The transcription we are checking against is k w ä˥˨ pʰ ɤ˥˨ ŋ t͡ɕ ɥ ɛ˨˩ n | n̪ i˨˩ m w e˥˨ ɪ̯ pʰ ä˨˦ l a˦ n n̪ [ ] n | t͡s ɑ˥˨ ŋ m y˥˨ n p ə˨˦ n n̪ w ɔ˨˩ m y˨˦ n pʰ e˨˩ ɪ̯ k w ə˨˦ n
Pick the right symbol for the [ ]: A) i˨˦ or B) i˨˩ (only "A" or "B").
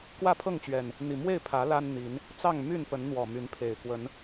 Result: A